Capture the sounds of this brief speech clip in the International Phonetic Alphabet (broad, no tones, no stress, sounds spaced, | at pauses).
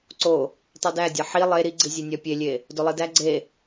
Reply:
ǀ o | tˤ i d æ dʲ ɒ ħ i lˠ e ɾ i ɡ͡ǀ i zʲ e nʲ ɒ pʲ e lʲ e | d o lˠ i d æ ɡ͡ǀ e